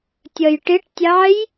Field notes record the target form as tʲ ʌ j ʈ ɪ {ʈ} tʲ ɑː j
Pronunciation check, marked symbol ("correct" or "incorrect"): correct